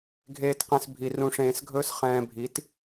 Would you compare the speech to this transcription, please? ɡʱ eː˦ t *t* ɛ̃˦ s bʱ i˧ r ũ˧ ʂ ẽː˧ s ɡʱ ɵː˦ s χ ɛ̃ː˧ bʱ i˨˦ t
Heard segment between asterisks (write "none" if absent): q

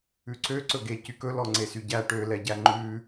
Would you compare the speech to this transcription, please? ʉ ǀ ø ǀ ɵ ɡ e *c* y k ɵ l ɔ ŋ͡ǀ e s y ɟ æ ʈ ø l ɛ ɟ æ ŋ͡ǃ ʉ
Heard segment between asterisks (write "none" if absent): c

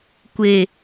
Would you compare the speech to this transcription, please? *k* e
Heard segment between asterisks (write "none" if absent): kʷ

